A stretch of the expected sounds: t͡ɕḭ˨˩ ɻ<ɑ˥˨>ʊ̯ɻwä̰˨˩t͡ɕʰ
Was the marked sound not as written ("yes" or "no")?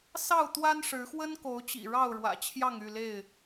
no